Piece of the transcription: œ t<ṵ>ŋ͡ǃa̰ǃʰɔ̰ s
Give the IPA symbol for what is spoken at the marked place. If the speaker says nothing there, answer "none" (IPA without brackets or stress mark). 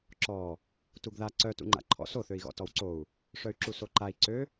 ṵ